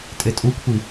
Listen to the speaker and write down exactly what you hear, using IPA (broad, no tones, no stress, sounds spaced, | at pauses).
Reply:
tʼ e tʼ u kʷʰ i